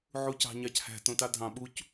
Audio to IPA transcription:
ʕ u c ɑ̤ ɲ ɑ c h æ̤ t õ t ɑ dʱ ɑ̃ ɓ u c

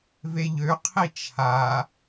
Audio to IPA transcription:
v e ʎ ø qʰ i t͡ʃʰ a

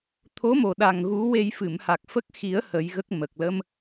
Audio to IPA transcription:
t̪ʰ o˧˥ m o˨˩ ɗ a˨˩ ŋ ɣ u˧˥ w e˧ j f ɨ˨˩˨ m h a˨˩ k̚ f ə˦˥ k̚ x i˨˩˦ ə̯ h ə˨˩˦ j ɣ ə˦˥ k̚ m ə˨˩ k̚ l ə˧ m

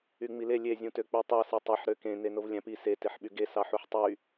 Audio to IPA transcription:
y ŋ͡m i l e lʲ e zʲ ũ t ø k͡p y tˤ ɑ s i tˤ e ħ ɾ ø k ẽ n e n o v lʲ æ̃ p i s e t e ħ ɓ y ɡ e s ɑ ħ u ħ tˤ y

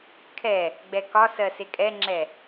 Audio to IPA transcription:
kʰ ɛ | ɡ͡b ɛ k ɒ s ɜ s e kʼ ɛ ŋ͡ǁ ɛ

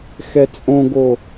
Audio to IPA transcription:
x ɛ t͡sʼ õ ɡ o

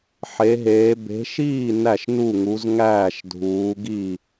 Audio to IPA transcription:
ħ e˨˦ ɦ eː˨˦ b e̤˨˦ ʃ iː˥˨ n æ˥˨ ʃ n u˥˨ ŋ u˨˦ z ŋ æː˥˨ ʃ dʱ uː˨˦ ɡ i˥˨

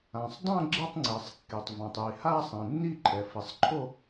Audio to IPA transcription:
ã˩ sˤ dˤ ã˥˧ ɡ͡ǁ ɪ˥˧ tˤ ŋ͡ǀ e˩ sˤ kː e˩ tˤ v ã˩ tˤ j i˩ h aː˥˧ sˤ ẽ˩ nː i˥˧ ǃʰ ɛ˩ f i˩ sˤ ǃʰ o˥˧

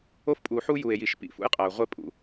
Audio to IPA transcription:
o˦ f pʼ u˨ ħ u˦ j u˨ e̯ j i˨ ʃ p ḭ˨ f ṵ˦ j qʼ æ˨ o̯ ʁʷ e˦ pʼ ṵ˨

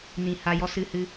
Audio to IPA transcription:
n ĩ˨ h a˧ j ɔ˧ s ɨ˧ h ɨ˧

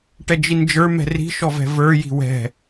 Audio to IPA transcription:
ʈ ɛ d͡ʒ i n d͡ʒ ə˞ m ɛ̤ r i̤ ʃ ɔ v ɛ̤ v ə˞ j i̤ w ɛ̤

